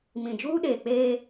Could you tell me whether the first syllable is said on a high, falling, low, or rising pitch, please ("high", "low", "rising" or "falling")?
low